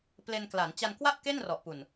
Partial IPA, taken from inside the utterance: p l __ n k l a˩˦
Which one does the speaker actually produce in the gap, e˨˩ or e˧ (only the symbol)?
e˧